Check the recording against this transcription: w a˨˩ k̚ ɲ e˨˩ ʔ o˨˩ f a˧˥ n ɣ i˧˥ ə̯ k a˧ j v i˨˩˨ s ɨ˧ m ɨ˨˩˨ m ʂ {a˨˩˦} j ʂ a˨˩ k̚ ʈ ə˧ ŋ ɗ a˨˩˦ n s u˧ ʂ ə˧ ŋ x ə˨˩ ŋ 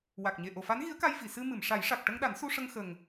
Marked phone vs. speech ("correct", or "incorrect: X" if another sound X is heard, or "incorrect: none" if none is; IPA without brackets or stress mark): correct